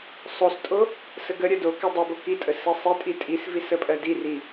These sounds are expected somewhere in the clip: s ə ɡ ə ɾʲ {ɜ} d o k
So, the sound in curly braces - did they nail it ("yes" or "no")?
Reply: yes